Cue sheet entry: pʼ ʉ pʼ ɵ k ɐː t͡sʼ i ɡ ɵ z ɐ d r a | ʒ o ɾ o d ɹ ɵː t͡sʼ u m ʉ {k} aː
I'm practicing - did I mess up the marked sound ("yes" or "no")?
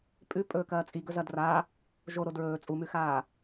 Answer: yes